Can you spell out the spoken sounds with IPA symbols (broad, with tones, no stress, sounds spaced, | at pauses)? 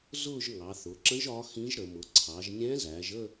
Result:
z ʊː˥˧ ʒ ŋ ɑ˩˧ θ ʊ˩˧ ǁ ə̃˧˥ ʒ ɒ˧˥ x ĩ˧˥ ʒ ɾ ə˩˧ m ʊ˩˧ ǀʰ ɑ˩˧ ʒ nʲ ɛ̃˧˥ z æː˩˧ ʒ əː˥˧